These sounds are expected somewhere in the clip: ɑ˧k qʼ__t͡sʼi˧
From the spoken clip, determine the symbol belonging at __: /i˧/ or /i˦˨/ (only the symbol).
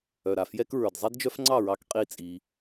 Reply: i˦˨